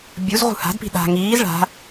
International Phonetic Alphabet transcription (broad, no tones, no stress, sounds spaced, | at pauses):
bʲ u z ʁ ṳ h a̤ d p i̤ ɗ a̤ ŋ iː z ɭ a̤